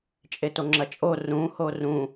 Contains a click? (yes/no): yes